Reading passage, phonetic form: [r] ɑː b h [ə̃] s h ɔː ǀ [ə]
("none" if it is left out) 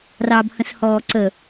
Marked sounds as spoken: r, ə̃, ə

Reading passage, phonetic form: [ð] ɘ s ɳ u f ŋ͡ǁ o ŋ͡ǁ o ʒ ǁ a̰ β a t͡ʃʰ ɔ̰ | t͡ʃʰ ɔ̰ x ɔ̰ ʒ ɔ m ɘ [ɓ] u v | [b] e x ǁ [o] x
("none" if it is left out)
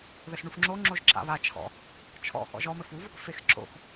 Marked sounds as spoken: ð, f, f, o̰

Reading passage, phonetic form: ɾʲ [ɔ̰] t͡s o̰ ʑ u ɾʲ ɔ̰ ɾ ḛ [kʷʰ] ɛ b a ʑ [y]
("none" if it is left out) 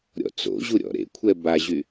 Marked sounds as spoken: ɔ̰, kʷʰ, y

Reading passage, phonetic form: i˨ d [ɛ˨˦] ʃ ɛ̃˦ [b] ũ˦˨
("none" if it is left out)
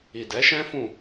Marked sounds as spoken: ɛ˨˦, f

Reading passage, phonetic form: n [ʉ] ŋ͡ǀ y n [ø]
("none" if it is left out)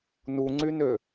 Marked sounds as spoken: u, ø

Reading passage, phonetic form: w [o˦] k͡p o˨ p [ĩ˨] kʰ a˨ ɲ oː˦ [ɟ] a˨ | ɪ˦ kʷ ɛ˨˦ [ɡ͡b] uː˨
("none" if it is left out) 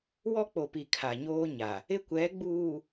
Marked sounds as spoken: ɔ˦, i˨, ɲ, ɡ͡b

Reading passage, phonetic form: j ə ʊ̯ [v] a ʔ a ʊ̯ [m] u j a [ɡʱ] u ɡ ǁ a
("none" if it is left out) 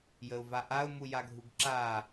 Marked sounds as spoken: v, m, ɡʱ

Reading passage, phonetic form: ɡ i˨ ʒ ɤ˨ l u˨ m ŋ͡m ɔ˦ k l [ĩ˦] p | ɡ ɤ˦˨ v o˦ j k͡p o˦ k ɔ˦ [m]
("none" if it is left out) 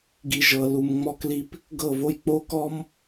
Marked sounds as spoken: i˦, m

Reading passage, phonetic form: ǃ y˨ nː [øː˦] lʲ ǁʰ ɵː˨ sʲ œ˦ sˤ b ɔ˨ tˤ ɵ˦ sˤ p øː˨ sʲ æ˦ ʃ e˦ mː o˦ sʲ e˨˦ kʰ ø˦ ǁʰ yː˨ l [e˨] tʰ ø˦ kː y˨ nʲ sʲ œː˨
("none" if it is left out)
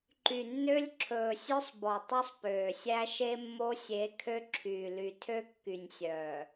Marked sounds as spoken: ø˦, y˨

